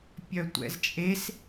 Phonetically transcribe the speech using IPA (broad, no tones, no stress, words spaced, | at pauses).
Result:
pʲœtʷɛ̰zt͡ʃʼes